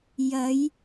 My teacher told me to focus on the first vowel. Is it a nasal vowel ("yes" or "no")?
no